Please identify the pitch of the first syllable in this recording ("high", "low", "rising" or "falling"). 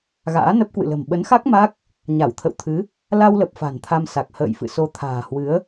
rising